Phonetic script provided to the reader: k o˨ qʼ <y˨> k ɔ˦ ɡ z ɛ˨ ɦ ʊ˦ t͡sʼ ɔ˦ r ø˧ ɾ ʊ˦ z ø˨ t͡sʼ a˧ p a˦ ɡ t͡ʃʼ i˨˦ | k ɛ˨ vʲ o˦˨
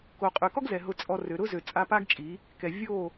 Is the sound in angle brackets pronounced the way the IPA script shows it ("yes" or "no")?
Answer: yes